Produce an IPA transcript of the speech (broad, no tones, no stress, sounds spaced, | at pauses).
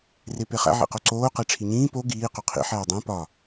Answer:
r e p e χ æ̰ ʕ ḭ q o ǀ oː q e ʈ͡ʂʰ i ɲ ĩː p o ɡ iː q o qʰ ḭ ħ æː dˤ æ̃ p ɒ